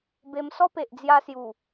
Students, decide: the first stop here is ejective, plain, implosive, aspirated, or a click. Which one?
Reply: plain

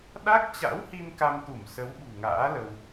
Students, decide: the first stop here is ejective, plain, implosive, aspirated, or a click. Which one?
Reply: implosive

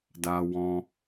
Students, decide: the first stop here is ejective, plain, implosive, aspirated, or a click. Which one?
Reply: plain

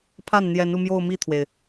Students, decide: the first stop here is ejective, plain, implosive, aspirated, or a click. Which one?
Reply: aspirated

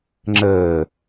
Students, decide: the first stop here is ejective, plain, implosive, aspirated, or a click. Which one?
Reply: click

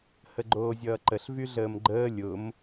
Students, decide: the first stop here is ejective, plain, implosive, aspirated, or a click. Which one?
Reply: click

